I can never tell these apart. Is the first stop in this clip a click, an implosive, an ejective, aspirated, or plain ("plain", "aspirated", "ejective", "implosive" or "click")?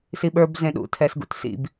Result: implosive